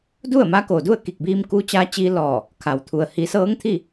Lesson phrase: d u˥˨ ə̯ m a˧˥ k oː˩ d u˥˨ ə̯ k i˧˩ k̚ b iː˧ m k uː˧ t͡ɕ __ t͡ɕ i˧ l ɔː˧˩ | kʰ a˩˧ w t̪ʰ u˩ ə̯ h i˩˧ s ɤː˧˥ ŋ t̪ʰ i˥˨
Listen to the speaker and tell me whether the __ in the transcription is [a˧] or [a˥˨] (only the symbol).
a˧